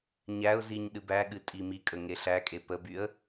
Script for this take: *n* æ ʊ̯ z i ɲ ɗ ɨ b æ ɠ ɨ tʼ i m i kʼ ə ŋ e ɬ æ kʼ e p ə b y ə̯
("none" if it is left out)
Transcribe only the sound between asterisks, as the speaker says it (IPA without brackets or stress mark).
ɲ